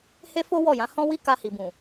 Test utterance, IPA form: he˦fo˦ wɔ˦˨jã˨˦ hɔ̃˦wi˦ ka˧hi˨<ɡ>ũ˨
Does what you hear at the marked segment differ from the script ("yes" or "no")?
yes